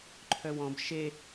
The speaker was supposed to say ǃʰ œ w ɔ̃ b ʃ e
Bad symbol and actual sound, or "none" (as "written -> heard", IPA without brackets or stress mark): none